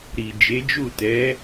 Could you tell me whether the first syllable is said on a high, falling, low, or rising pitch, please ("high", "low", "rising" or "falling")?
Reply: low